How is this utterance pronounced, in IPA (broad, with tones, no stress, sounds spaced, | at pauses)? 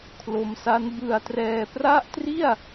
kʰ l o˧ m s a˦˥ n b ɯ˧ a̯ t r ɛː˧ p r a˥˩ ʔ t r i˥˩ a̯